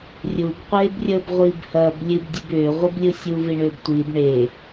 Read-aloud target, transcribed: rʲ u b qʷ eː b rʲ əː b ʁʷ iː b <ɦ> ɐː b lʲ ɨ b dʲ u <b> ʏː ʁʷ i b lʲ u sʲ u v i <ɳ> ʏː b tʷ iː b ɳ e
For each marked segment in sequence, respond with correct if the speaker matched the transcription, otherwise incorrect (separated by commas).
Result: incorrect, correct, correct